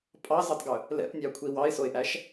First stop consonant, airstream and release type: ejective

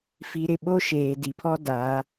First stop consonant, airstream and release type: implosive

